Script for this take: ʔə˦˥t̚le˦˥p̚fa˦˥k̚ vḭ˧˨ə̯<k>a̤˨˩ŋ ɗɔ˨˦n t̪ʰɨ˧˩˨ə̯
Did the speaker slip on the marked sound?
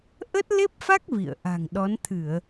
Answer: yes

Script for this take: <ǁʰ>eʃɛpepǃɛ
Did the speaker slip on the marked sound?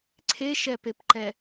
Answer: yes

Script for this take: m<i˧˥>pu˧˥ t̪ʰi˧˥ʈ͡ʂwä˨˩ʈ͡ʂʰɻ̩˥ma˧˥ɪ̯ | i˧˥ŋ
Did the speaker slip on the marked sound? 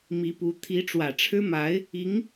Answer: no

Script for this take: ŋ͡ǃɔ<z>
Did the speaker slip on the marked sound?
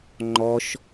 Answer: yes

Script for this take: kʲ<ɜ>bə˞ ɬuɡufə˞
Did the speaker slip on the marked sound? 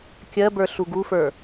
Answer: no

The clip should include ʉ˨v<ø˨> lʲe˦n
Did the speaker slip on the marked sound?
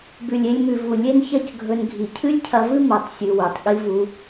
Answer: yes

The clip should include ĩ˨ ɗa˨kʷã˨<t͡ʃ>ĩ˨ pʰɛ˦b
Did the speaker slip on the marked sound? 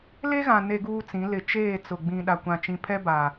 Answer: no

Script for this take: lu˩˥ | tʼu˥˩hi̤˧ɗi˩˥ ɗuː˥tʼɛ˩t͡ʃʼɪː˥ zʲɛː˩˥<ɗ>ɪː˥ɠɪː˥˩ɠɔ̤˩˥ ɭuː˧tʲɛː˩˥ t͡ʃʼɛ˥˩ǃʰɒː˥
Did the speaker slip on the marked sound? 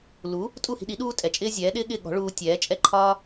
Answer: no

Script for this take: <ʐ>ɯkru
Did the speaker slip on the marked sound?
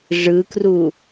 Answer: no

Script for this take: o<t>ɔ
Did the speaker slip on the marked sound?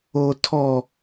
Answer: yes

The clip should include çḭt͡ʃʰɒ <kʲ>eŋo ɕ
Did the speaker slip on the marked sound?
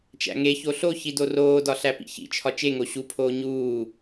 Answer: yes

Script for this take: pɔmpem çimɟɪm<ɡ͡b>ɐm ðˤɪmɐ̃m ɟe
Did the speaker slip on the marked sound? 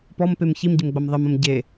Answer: no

